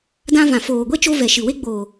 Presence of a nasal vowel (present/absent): present